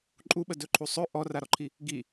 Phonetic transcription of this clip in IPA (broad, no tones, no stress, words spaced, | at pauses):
ǃʼuɓə dɵǃʰusˤɵ ʔɔraɾɔǃʰi | ɡi